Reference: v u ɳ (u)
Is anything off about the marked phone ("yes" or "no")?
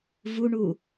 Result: no